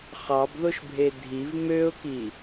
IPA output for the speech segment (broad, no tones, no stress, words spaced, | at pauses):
χɑbðoʃbʱe dʱiv møʊ̯ki